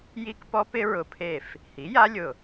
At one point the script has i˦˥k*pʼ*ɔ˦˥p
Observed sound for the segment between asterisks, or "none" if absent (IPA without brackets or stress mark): p